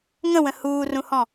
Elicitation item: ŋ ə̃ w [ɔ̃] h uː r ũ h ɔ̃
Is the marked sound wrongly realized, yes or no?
yes